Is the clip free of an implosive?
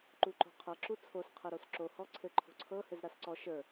yes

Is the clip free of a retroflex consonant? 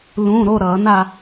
yes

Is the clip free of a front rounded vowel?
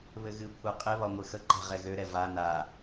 no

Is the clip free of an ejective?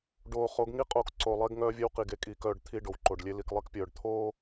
no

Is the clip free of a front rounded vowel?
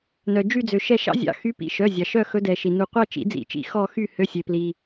no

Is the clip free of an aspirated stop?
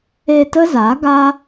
yes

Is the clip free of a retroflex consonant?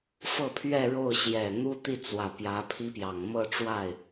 no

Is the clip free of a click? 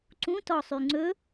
no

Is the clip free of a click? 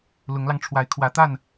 yes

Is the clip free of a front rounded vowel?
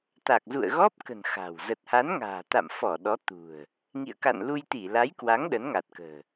yes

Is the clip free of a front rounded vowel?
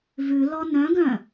no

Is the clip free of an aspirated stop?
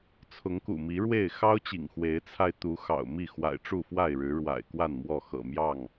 no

